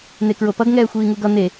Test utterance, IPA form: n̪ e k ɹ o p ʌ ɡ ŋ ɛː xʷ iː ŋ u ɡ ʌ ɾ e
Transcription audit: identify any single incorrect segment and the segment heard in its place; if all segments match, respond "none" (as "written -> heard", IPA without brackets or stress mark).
ɾ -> n̪